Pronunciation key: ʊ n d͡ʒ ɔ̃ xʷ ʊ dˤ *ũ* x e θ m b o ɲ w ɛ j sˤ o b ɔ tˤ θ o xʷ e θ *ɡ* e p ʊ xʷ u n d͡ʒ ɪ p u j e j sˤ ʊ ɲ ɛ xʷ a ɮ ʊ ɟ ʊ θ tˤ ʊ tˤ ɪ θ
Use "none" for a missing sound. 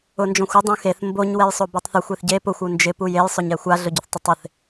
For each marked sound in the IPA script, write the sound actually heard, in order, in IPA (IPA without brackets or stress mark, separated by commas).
ũ, ɟ